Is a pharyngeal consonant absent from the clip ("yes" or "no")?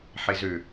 no